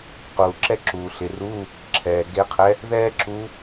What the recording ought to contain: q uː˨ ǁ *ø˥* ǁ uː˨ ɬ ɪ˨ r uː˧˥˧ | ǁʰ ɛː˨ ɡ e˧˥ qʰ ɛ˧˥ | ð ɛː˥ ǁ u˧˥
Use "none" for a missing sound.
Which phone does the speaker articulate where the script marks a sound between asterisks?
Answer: ɛ˥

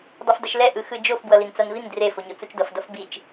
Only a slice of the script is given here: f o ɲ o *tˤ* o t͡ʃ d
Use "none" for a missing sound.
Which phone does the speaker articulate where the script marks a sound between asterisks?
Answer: t͡s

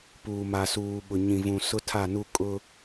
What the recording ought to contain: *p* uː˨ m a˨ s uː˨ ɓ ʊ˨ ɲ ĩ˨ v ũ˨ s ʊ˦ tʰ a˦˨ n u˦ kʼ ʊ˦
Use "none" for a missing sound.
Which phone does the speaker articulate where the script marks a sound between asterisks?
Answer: p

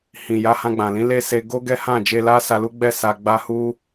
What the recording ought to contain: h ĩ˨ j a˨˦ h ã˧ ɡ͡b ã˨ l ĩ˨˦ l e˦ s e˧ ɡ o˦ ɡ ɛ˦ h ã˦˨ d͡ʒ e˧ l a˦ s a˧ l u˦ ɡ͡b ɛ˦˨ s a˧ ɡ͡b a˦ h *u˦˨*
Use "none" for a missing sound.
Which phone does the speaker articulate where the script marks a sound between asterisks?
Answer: u˦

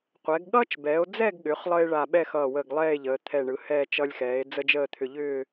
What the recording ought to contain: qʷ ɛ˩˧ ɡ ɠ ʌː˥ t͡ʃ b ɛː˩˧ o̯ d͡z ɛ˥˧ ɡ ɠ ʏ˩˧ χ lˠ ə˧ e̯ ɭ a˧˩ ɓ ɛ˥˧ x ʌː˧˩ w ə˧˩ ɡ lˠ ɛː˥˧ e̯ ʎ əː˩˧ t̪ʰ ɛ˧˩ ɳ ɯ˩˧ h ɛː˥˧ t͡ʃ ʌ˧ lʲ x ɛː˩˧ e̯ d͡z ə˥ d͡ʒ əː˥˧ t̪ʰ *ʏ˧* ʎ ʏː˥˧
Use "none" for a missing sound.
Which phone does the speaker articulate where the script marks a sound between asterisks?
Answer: ʏ˧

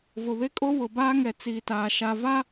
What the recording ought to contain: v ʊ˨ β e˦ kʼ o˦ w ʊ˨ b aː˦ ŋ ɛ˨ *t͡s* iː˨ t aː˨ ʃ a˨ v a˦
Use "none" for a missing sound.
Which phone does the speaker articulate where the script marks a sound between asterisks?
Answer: t͡s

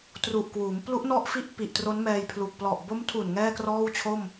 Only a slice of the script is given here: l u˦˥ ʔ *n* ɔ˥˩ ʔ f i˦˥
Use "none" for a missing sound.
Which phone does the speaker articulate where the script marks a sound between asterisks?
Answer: n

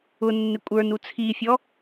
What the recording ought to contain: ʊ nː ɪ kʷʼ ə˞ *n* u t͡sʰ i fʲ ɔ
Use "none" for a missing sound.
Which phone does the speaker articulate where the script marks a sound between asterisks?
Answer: n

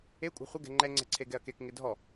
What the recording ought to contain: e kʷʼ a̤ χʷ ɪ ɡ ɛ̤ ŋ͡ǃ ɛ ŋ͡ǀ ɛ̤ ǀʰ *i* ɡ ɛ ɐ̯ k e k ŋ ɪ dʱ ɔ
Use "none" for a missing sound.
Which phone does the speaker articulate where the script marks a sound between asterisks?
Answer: e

